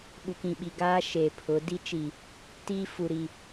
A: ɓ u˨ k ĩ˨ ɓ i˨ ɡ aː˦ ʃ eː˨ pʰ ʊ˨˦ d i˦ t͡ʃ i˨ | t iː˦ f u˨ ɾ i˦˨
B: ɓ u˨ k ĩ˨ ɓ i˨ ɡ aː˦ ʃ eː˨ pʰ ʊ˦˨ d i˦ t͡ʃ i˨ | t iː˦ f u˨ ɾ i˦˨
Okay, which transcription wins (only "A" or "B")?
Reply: A